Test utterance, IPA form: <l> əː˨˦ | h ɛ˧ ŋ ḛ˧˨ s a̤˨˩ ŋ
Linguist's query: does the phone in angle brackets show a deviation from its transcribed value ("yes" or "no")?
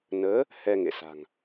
yes